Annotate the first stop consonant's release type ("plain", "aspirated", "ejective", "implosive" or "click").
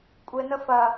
ejective